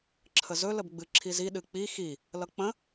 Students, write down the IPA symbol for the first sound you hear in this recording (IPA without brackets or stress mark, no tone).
ǁʰ